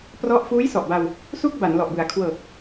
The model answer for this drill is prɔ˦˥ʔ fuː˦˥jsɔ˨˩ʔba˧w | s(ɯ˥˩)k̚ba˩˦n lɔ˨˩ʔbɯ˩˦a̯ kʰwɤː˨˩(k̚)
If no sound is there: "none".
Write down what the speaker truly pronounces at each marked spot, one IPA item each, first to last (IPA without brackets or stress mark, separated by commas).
u˥˩, k̚